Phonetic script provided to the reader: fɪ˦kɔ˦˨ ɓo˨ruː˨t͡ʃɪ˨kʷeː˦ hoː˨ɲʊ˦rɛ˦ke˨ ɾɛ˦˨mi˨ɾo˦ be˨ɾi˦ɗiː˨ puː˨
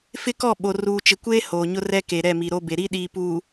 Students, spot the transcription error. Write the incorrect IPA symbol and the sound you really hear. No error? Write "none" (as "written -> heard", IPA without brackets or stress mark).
none